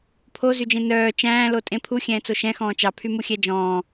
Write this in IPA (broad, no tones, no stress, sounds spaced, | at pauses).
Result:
pʰ o z y d͡ʒ ẽ n œː t͡ʃ æ̃ː l o tʼ ẽ pʰ u xʲ ɛ̃ː t͡s o ʃ ɛ̃ x ɔ̃ː t͡ʃ ɑ pʰ y m u xʲ ɛ d͡ʒ ɔ̃ː